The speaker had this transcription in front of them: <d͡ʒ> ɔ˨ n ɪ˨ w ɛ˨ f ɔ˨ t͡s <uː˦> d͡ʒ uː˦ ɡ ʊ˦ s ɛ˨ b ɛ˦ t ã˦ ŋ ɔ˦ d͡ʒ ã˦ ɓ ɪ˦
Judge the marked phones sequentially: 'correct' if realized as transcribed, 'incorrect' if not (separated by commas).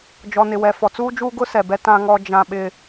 correct, correct